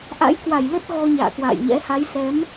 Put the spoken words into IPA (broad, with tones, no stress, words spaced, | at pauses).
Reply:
ʔa̰˧˥jkwa˧˩jlə˦˥t̚ ɣɔ˧ɲa̰ː˧˨kwa̰ː˧˨jɲɛ̰˧˥ ha˨˦jsɛ˨˦m